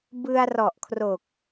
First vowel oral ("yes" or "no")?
yes